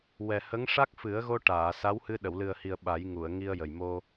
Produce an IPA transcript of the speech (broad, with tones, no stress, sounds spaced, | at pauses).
w ɛ˨˩ h ə˧˥ ŋ ʂ a˦˥ k̚ f ɨ˨˩˦ ə̯ ɣ o˧ ʈ aː˨˩˨ s a˧˥ w h ɨ˧ ɗ ə˨˩˨ w l ɨ˨˩ ə̯ h i˨˩ ə̯ ɓ a˨˩˦ j ŋ u˨˩˨ ə̯ ŋ i˧ ə̯ j ə˨˩ j m o˧